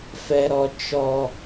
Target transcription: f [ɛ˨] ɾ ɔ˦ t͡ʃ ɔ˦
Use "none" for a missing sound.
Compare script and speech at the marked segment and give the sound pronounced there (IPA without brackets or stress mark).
ɛ˦